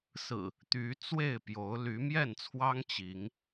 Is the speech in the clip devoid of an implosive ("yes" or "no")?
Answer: yes